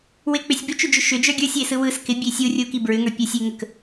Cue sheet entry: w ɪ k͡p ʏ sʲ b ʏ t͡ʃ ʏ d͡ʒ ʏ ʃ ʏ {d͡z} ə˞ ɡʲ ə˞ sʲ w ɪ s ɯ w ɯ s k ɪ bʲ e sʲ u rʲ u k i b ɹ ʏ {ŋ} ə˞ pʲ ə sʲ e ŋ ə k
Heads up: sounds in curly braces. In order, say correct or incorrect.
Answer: incorrect: d͡ʒ, correct

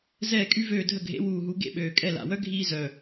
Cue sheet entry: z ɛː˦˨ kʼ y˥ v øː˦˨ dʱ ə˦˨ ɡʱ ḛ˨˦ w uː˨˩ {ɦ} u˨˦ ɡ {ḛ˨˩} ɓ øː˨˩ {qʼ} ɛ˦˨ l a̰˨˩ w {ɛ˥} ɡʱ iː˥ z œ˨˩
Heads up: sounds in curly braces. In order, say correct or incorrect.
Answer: correct, incorrect: ḛ˦˨, incorrect: kʼ, incorrect: œ˥

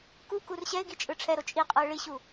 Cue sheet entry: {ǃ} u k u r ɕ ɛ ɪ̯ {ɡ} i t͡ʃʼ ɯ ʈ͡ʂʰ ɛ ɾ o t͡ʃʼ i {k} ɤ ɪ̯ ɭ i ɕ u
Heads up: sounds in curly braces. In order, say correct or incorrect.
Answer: incorrect: k, correct, incorrect: qʼ

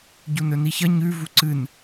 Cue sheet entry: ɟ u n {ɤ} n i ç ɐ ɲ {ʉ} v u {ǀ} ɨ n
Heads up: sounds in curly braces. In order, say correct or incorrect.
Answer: incorrect: ɵ, correct, correct

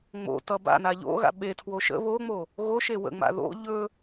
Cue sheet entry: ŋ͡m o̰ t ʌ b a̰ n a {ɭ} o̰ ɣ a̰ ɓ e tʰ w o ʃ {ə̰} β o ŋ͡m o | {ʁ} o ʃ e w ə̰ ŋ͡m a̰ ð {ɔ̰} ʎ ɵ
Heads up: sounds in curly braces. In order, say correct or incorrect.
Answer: incorrect: ʎ, correct, incorrect: ɣ, incorrect: o̰

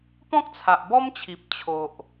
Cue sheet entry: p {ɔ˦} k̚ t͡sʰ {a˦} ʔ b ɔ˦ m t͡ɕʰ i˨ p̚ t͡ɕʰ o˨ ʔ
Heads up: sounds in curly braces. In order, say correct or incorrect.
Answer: incorrect: ɔ̃˦, incorrect: a˨

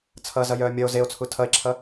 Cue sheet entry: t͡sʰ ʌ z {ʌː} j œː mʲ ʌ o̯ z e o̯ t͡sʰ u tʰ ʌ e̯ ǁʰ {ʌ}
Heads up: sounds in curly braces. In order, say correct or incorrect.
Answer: incorrect: ʌ, correct

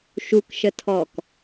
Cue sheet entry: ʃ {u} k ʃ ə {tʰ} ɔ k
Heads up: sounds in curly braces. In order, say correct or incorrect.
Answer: correct, correct

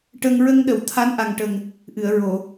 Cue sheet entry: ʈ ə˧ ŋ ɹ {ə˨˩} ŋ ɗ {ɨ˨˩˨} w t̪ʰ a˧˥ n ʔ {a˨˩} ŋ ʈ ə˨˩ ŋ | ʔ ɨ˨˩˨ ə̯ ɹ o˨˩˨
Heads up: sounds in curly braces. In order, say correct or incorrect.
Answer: incorrect: ə˧, incorrect: ə˨˩˨, correct

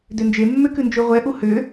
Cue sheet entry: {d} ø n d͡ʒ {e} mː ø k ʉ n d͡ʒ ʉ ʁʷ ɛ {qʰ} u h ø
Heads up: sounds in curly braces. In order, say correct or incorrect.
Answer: correct, correct, incorrect: ʔ

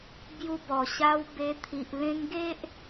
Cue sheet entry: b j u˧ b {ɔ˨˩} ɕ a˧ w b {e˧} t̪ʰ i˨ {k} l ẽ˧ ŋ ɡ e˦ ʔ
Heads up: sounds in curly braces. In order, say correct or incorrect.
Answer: correct, correct, incorrect: ʔ

